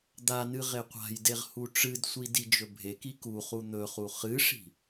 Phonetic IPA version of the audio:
d̪ a n ɨ ʁ e qʷ a̤ j d e ʁ h u ʈ͡ʂ ɨ d sʷ i d i d͡ʒ ɵ bʱ e k i k u χ u n̪ ɵ χ u χ ɨ ʂ i̤

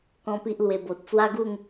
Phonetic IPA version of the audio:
k ɔ̃˦ p i˦ ʔ l w e˧ b o˨ t̚ t͡s w a˦ ɡ u˥˧ ŋ

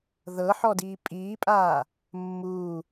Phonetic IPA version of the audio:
ð ɤ ħ ɔ d iː pʼ iː pʼ aː | mː uː

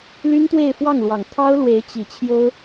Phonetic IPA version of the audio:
l y˥ n t̪ w e˥˧ ɪ̯ f w ɑ˥˩ ŋ l w ɑ˨˩ ŋ t̪ʰ ɑ˥ ʊ̯ l w e˧˥ ɪ̯ t͡ɕ i˨˩ t͡ɕʰ j o˥ ʊ̯

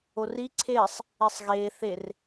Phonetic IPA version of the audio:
o r i ǀʰ eː sˤ | e sˤ ɣ eː θ e r

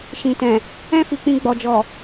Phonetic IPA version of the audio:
ʃ ĩ˨ t ɛ̃˨ | ɛ̃˦ f i˧ k͡p ĩ˧ ɡ͡b ɔ˨ d͡ʒ ɔ˨

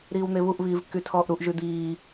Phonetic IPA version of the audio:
ɾ iː w n̪ e β u ʔ β iː v kː y tʰ ɔː ʔ ɾ u ʔ ʒ y d̪ iː

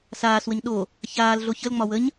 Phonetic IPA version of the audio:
s aː s w ə ɲ ɗ o | ç aː l ɮ o ç ə l ŋ͡m ɒ w ə ɲ

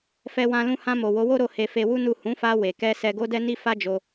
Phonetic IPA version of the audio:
f ɛ˧ w ã˧ l ũ˧ h ã˧ m o˨ w o˨˦ w o˦ ɾ o˧ h e˧ f e˧ w u˦ n u˦˨ h ũ˨˦ f a˧ w e˨ k ɛ˧ s ɛ˧ ɡ o˦ d ɛ˦ n i˦ f a˦ d͡ʒ o˧

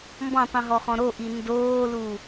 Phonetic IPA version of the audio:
m b ɔ̃ tˤ ũ ɦ ɔ χ ɔ̃ ɾ o ʔ i n d oː l u

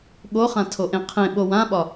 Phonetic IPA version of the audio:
ɠ o χ ã tʰ o ʔ ẽ qʰ ẽ ɓ o w ã ɓ ɒ

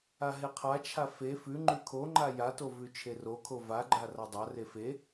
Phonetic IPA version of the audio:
a ɦ e qʰ a t͡ʃʰ a f e f ʉ ŋ͡ǃ ʉ kʰ o ŋ͡ǃ a j a t o v ʉ t͡ʃʰ e r o kʰ o v a ɡ͡ǃ a r a dˤ a r e f e

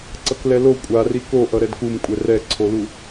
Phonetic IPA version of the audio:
ǀ ʌ k l ɛ l o kʷʼ a r i k o ʔ ʌ ɾ ɛ d k u m kʷʼ ɛ r ɛ ǀʰ o l u

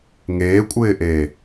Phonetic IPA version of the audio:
ŋ eː kʷʼ ɪː ʔ eː

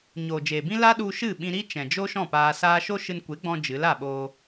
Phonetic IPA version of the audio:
ɲ oː˨ d͡ʒ eː˨ b ĩ˦ l a˦ ɗ u˧ ʃ ɨ˦˨ ɓ ĩ˧ ɾ i˦ t͡ʃ ɛ̃˨ d͡ʒ o˦ ʃ ɔ̃˦˨ p aː˧ s aː˦ ʃ o˦ ʃ ɨ˧ n kʷ e˨˦ ɡ͡b ɔ̃˧ d͡ʒ ɨ˨˦ l a˦˨ ɓ oː˧

